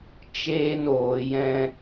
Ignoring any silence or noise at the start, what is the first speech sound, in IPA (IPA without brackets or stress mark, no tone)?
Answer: t͡ʃ